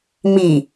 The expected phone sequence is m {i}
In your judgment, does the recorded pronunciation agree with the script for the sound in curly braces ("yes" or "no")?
yes